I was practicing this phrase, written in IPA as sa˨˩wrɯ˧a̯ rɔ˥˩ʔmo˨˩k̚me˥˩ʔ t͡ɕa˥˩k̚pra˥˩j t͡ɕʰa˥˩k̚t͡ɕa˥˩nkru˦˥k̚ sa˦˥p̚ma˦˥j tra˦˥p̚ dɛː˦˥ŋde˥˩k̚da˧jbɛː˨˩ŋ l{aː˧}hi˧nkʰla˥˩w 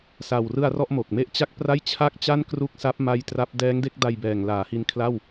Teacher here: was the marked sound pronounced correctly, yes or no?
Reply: no